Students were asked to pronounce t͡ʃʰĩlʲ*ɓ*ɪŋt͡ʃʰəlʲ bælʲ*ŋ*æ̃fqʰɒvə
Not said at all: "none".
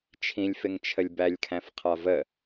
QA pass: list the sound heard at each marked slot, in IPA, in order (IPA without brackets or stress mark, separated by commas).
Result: f, kʰ